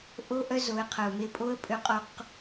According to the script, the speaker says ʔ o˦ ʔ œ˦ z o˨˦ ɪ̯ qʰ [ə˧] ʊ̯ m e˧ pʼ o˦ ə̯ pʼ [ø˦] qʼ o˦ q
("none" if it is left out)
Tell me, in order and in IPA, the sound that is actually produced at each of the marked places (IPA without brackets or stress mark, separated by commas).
ə˨, ø˦